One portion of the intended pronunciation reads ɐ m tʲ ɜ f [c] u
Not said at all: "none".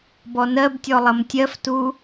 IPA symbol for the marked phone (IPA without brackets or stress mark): t